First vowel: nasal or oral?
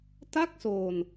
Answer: oral